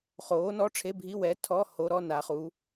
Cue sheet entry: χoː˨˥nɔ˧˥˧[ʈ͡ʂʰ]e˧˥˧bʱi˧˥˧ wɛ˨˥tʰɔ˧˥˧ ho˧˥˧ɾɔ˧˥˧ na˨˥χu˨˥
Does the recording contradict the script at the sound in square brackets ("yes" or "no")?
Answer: no